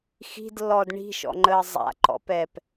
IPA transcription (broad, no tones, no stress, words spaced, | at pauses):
xi̤dlːɔd ɳi̤ʃɔ̰ŋ͡ǃəː zˤa̰ǃɔ̰pɛːp